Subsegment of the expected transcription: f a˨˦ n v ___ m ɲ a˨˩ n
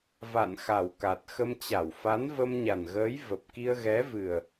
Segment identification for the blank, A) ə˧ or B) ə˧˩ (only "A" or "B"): A